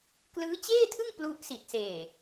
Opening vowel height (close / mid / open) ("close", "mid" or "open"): close